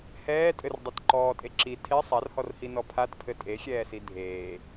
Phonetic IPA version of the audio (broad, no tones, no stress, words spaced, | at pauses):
hɛː tʼɘrdˤɛt ǃɔːtʼe ǁi tʰe sˤarhɔrhinɔ pʰatpʰɘ tʼexʲɛːsi dʱeː